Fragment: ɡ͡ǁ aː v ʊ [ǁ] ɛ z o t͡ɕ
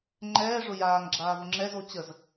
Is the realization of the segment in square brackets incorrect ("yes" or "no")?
yes